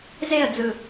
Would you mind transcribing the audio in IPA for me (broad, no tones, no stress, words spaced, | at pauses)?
zeə̯d͡zɯ